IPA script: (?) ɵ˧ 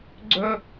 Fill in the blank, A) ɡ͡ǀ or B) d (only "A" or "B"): A